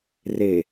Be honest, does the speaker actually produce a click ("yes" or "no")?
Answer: no